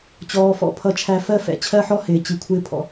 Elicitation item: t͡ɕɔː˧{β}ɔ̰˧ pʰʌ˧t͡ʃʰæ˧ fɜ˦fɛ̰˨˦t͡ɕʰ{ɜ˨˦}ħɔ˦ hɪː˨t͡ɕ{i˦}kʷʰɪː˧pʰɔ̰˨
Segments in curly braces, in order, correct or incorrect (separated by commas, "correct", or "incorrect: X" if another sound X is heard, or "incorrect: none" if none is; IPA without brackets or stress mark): incorrect: f, incorrect: ɜ˦, incorrect: i˨